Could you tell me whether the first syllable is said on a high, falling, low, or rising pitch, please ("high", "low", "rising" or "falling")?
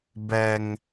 high